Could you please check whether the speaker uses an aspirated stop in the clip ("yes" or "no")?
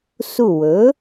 no